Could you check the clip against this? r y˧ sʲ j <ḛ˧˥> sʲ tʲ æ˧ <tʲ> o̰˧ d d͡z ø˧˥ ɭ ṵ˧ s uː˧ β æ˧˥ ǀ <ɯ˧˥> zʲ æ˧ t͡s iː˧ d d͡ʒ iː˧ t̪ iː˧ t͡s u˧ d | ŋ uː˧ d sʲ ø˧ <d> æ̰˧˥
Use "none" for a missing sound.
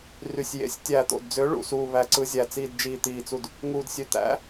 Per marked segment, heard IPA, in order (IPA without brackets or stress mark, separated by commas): ḛ˧˥, t̪, ɯ˧˥, t̪